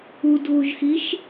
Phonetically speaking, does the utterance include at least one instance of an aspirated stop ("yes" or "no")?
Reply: no